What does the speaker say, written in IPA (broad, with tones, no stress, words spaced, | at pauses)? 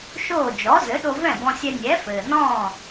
ʃoː˥˩ d͡ʒɔ˩˥zɘ˩˥ ɗo˧vɛ̃˥˩bɔ̃˧sʲɛ˧ nʲɛ˩˥fɘː˩nɔ̃ː˥˩